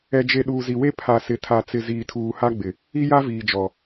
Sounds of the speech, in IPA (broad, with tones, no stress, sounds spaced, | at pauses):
ɛ˨ d͡ʒ e˨ ɗ uː˨ z i˨ w e˦ pʰ a˨ s ɪ˨ tʰ a˨ t͡s ɪ˨ z iː˨ tʰ uː˨ h a˦ ɡ͡b ɪ˨ | i˦ j a˦ v iː˨ d͡ʒ ɔ˨